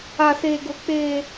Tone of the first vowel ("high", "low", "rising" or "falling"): low